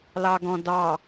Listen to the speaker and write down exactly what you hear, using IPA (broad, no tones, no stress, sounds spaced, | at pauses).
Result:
l ɑ ɡ ɔ̃ d ɑ